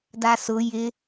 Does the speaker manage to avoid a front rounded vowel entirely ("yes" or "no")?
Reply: yes